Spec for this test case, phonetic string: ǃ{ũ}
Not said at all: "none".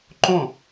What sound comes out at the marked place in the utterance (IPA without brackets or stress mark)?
õ